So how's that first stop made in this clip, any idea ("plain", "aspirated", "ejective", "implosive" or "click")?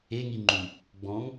click